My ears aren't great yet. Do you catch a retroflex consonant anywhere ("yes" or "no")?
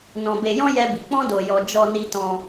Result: no